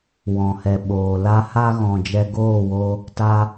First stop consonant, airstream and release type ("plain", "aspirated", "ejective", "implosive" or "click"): implosive